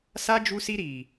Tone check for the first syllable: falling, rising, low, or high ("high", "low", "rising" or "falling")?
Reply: high